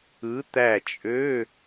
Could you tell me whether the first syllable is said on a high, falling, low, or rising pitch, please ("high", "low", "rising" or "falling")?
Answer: rising